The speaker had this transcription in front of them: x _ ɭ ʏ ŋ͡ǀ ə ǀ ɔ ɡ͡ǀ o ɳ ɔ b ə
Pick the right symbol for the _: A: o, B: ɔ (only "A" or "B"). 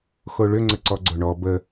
A